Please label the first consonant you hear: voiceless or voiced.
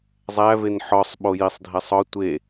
voiced